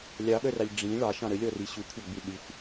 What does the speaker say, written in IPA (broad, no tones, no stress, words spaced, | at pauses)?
lʲɑɓœrɑlʲ ɖ͡ʐĩ ɭɑʃɑ̃ ɾəlʲɔri ɕukʷʰɑɡ͡bi ɗixʷ